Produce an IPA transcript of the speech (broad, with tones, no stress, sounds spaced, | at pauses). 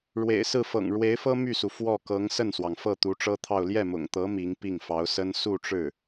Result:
ɻ w ḛ˨˩ ɪ̯ s ɹ̩˥˩ f ɤ̰˨˩ ŋ ɻ w e˧˥ ɪ̯ f ɤ˥ m y˥˩ s u˩ f w ɔ˥˩ k ɤ˧˥ ŋ s ə˥˩ n s w ɑ˩ ŋ f ɤ˥˩ t̪ u˧˥ ʈ͡ʂ ɤ˥ t̪ʰ ɑ˥˧ ʊ̯ l j ɛ˥˩ m ʊ̰˨˩ ŋ t̪ ɤ˧˥ m i˧˥ ŋ p i˥˩ ŋ f ɑ˧˥ ʊ̯ s ə˥ n s u˥˧ ʈ͡ʂ ɻ̩˥˩